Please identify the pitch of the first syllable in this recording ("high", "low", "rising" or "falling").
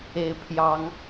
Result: rising